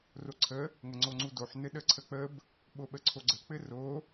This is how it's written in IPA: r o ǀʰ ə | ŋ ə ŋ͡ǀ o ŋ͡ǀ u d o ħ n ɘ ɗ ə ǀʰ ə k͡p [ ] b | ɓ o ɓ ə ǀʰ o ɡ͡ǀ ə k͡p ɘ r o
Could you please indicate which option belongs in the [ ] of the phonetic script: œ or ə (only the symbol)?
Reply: ə